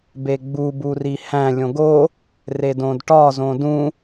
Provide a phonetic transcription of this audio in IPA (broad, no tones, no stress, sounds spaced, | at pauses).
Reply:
b e ɡ͡b u b u r i h æ̃ lʲ õ ɡ o | r e d õ d ʈ ɒ z õ d ũ